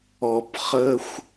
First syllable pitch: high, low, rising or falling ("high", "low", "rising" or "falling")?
low